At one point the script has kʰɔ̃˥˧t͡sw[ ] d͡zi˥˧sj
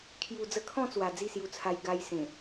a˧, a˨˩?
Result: a˨˩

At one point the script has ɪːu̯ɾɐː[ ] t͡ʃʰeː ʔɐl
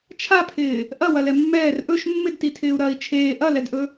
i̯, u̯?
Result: i̯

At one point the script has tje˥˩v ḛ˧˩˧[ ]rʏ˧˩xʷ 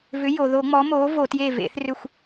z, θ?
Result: θ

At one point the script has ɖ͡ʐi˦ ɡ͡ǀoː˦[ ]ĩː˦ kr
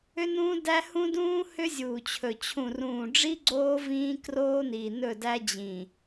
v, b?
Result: v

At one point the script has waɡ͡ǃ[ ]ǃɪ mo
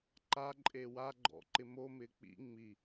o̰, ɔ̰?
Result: ɔ̰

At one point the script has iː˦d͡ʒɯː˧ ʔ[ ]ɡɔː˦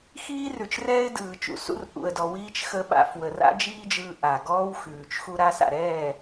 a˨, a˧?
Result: a˨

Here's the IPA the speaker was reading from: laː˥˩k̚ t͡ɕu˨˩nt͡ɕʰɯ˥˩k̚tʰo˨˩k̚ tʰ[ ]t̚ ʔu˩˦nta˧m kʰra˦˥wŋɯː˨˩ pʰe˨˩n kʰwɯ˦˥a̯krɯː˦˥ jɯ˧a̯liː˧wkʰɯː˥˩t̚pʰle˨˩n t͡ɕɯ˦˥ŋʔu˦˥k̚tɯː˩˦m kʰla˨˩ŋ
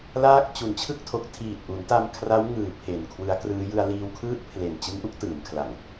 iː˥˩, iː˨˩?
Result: iː˨˩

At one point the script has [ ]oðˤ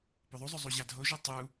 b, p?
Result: p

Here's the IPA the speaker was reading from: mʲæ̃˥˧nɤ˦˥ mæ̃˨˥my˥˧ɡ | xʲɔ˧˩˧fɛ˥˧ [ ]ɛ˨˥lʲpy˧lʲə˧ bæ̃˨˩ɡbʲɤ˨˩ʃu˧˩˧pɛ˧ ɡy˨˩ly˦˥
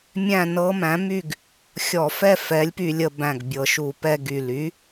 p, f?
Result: f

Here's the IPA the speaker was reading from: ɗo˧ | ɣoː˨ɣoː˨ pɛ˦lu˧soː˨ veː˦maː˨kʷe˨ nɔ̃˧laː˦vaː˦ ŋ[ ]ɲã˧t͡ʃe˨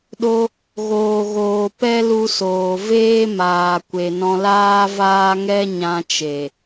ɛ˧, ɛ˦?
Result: ɛ˦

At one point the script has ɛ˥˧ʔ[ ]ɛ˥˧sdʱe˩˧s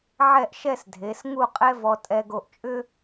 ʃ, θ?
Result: ʃ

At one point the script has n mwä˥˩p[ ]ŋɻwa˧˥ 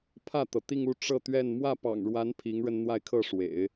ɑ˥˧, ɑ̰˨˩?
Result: ɑ̰˨˩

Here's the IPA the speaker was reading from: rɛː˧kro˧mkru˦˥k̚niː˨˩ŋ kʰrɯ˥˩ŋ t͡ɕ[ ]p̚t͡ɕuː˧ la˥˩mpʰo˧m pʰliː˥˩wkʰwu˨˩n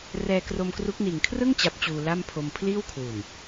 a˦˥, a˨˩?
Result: a˦˥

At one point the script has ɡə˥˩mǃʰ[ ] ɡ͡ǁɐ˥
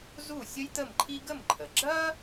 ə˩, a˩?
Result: ə˩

